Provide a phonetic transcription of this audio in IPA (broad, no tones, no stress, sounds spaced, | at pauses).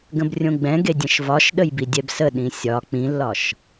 ɡ ə̃ b rʲ õ ɡ͡b ɛ̃ ɡ e dʲ ə̃ ʃ v ɒ ʃ ɗ ə j b i dʲ ɛ b s ə ɗ ĩ sʲ ɒ k͡p ĩ lː ɒ ʃ